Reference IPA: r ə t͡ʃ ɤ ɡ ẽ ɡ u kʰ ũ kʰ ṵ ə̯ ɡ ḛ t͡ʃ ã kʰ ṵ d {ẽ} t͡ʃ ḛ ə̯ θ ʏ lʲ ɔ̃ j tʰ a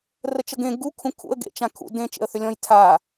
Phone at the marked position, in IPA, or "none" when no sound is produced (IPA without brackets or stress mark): ẽ